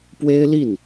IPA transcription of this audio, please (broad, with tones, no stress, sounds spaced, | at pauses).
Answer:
p w e˥ ɪ̯ l i˥˩ n